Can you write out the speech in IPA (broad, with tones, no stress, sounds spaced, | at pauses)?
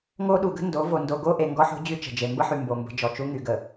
ŋ o˦ ɗ u˨ ɡ ə̤˦ n d o˨˦ v o˨ n d o˨ ɡ o˦ ʔ e˨ ŋ ɡ ɔ˦ ħ o̤˦ d͡ʑ y˦ t͡ʃ ə̤˨ d͡ʒ e˨ m b ə˦ ħ y˨ m b o˨ m b ə̤˨˦ d͡ʒ ɔ˨ t͡ʃ u˦ ŋ y˨ ɡ ə˨